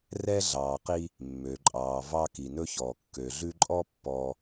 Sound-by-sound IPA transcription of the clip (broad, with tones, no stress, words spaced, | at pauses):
rɛ˥ ɮɑː˨qi˦ | mːø˩ǃʼɑː˩ vɑ˥ki˩nɵ˥çɔː˩ kːø˩ɮʉ˦ǃʼɔ˥ pːɔ˨